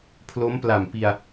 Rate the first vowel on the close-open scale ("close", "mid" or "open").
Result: mid